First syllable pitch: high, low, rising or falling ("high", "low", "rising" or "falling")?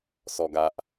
low